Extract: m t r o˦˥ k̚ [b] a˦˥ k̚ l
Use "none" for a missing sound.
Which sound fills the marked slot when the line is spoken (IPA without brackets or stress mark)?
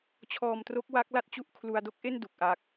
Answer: w